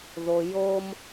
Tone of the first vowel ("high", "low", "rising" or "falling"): low